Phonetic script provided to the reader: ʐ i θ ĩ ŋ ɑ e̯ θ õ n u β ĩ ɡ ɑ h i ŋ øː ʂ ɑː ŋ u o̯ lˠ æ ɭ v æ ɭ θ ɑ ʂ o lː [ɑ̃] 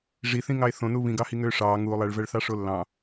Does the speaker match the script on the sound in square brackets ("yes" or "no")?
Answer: yes